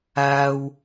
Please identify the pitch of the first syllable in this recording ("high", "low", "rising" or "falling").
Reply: high